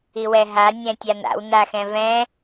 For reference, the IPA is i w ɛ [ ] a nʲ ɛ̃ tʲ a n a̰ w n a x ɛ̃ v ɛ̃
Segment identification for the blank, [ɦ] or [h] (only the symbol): ɦ